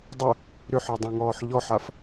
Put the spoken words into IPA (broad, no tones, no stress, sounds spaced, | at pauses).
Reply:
dˤ ʊ | ɾ ʏ ħ ɔ dˤ æ̃ ŋ ɔː ħ ʎ ɔ ħ a f